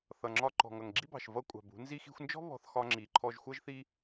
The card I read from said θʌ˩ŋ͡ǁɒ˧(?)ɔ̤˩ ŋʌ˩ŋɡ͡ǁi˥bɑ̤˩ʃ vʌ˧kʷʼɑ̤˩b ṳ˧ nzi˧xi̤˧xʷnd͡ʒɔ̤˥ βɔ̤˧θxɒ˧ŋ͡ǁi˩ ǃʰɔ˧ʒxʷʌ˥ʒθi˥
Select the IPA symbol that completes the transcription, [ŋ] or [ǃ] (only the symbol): ǃ